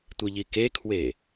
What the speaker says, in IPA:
tʷ i ʎ i k e kʰ w e

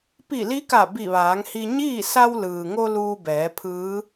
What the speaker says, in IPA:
p i˧˩ l i˧˥ k a˧˩ b i˧˩ ʋ aː˩˧ ŋ h i˧ ɲ iː˥˨ s a˧ w l ɯː˩ ŋ o˧ l uː˧ b ɛː˩˧ pʰ ɯː˧˥

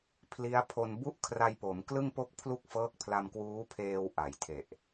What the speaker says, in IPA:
pʰ l i˦˥ a̯ pʰ o˧ n b u˥˩ ʔ kʰ r a˧ j p o˩˦ m k l ɯ˥˩ ŋ p o˥˩ k̚ pʰ l u˥˩ k̚ f ɤː˦˥ k̚ pʰ l a˧ m k w uː˦˥ pʰ eː˧ w ʔ a˩˦ j tʰ e˨˩ ʔ

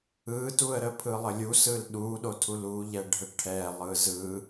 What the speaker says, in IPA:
ɯ t u ə̯ ɾ ə pʰ ɯ lˠ ə lʲ u s ɯ l ɗ u ɗ o tʰ u l u ʎ ɛ ɖʱ ə ʈʰ ɛ lˠ ɯ z ɯ

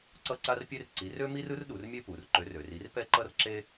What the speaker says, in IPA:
ǀ ʌ˥ ǀ a˥ r pʲ e˥ r ǀ i˨˥ r ø˥ m i˥ r ɯ˥ r ɗ u˩˧ r mʲ e˥ p u˩˧ r ǃ ø˨˥ r ø˩˧ r i˨˥ r p ɛ˥ ǃ ʌ˥ r ǁ e˥

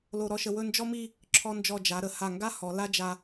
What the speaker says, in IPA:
l o˧ ɾ ɔ˥˧ ʃ ə˧ w ɵ˥˧ n d͡ʒ ɔ˥ m i˥˧ | ǁʰ ɔ˧ n d͡ʒ ɔ˧˩ d͡ʒ a˩˧ ɾ ə˩˧ h a˧˩ ŋ ɡ a˥ h ɔ˩˧ l a˥ d͡ʒ a˧

